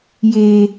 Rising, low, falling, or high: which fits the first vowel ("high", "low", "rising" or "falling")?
low